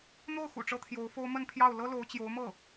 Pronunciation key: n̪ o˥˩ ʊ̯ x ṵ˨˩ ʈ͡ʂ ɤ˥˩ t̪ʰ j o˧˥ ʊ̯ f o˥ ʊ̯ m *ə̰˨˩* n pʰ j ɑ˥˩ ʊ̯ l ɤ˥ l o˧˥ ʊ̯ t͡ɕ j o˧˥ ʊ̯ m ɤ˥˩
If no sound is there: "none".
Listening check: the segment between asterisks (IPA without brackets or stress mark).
ə˥˧